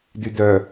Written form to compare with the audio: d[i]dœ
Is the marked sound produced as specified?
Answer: no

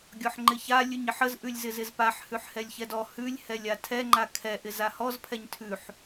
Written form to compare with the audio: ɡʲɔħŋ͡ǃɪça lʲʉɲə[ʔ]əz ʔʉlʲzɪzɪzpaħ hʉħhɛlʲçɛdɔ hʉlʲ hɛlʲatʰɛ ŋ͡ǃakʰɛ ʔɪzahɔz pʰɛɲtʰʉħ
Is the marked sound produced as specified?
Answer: no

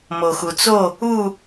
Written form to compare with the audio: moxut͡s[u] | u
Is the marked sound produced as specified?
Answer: no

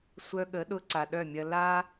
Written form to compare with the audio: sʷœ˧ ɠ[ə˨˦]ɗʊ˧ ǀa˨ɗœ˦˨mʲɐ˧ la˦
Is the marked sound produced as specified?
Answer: yes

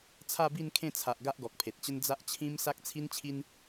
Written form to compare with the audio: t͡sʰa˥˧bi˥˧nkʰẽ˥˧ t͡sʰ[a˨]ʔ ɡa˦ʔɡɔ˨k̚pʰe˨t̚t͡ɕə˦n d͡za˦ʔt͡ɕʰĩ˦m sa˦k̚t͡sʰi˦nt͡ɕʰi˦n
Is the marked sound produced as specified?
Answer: yes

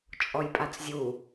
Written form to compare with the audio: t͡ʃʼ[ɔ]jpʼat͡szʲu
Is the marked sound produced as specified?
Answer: yes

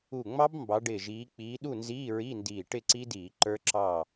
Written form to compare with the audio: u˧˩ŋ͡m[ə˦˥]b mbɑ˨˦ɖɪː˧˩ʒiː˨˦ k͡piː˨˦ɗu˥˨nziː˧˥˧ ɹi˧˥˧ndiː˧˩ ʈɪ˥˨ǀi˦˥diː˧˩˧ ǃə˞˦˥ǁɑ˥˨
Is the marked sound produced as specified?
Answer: no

